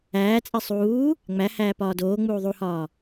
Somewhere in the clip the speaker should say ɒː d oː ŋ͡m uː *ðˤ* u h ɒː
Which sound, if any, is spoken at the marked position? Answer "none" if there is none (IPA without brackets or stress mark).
ðˤ